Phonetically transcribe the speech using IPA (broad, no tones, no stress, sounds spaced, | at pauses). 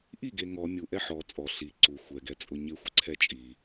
ʔ i ɡ e ŋ ɔ mʲ u ʔ ɛ ħ ɔ t͡sʼ ɔ ɬ i ǀ u xʷ ɛ ɡ ɛ t͡sʼ ʊ ɲ ɪ xʷ ɪ ǀʰ ɛ t͡ʃʼ i